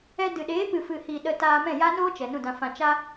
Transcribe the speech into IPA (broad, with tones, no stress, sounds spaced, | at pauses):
ɛ˧ d ɨ˨ ɗ eː˨˦ p ɨ˨ f ɨ˨ h i˨ ɗ ə˧ t aː˧ m ɛ̃˦˨ j a˦ n oː˦ t͡ʃ ɛ˨ n ũ˦˨ d ã˧ f ã˧ t͡ʃ a˦